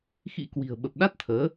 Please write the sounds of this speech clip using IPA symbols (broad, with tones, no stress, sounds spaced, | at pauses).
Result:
x ḭ˧˥ k w i̤˨˩ ə̯ ɓ ə˨˩ p̚ ɗ a˦˥ t̚ t̪ʰ əː˨˦